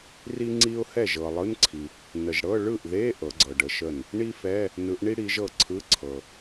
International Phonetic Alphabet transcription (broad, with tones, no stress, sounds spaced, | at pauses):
r i˥ ŋ͡ǀ i˥ ʊ̯ h ɛ˥˩ ʒ ɤ˨ lˠ ɯ˧˥˧ n ǀʰ i˨ | n ə˨ ʒ ɽ ɤ˧˥˧ ɭ ɯ˥˩ ʔ ð e˧˥˧ ʔ ɤ˨˦ ɡ͡ǀ ɤ˨ ɖ ə˨˦ ʃ ə˥˩ n | ɳ i˥ f ɛ˧˥˧ | n ɯ˨˦ ʔ ɳ i˥ ɽ i˨˦ ʒ ɤ˥˩ ǀʰ ɯ˧˥˧ ǀʰ ɤ˨